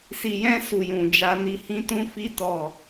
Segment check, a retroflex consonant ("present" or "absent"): absent